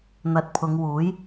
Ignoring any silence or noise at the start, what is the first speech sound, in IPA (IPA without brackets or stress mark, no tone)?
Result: n̪